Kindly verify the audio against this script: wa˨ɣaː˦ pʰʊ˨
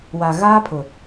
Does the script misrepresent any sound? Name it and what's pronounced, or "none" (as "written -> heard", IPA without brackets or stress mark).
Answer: none